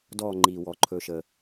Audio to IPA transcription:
dɔː˧˩ŋ͡ǃiː˩wɔ˩ ǃʰɵ˨˩˦ʃə˩

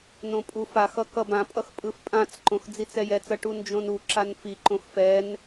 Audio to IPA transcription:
nõpʼufaxʌ kʌbãpʼʌx pʼɯfpʼãt͡sǃõx d͡zit͡sɛjɛt͡sʌ ʈund͡ʒõnuǁan fiǃõx fɛn

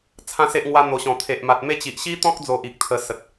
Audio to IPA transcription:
t͡sʰã˦se˦ʔ ŋwa˧n̪o˨˩ɕɔ̃˨˩ t̪ʰe˨ʔma˨t̚me˥˧ t͡ɕi˨ʔɕi˦t̪ɔ̃˦k̚d͡zo˨ʔ i˨k̚t̪ʰə˧ sə˨t̚

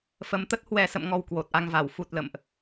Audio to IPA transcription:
fə˨˦mt̪ə˦˥t̚ hwɛ˨˩sə̰˧˨mŋɔ˨˩w kwo˨˩t̚ʔa˧ŋva˧˩w fu˨˩t̚ lə̰˧˨mʔ

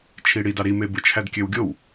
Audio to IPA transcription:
t͡ʃʰiɽidɑ ɾime bɯt͡ʃʰædkʲøwɡʲow

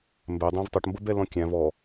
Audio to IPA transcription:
mbɛ dˤɛ̃vtˤʊʈ mbəbɛlɔ̃kʲæ̃v ɔ

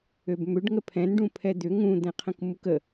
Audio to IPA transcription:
øbmʏɖ ŋəpʰɛ̃nɖũ pʰɛd̪ʏ ŋũd̪ɛ̃qʰə̃k mukə

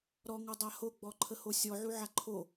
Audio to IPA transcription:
ɾɔŋɔdˤa hoɡ͡bɔǃʰəho sʲɔʕuʕa ǃʰo

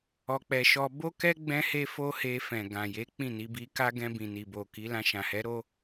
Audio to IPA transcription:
ɔ˧k͡pɛ˧ ʃɔ˧ bo˦kɛ˦ ɡ͡bɛ̃˦he˦ fo˦he˧fɛ̃˨ ɡã˨je˨˦ k͡pĩ˦˨ni˧bi˧ka˦ ɡɛ̃˧bĩ˨ni˨ bo˨ ki˨˦lã˧ ʃã˨hɛ˨˦ɾo˦

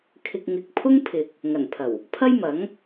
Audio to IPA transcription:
kʰɪ˨k̚ŋɪ˨k̚pʰʊ˥ŋpʰɪ˨k̚ | ŋɐ˨˩npʰɐ˨˩w | pʰɐ˥jmɐ˨˥ŋ

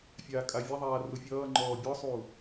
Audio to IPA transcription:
fʲaːkʼavʲaðˤaː rufʲʌːŋ͡ǃɔː bʲɔsˤuː

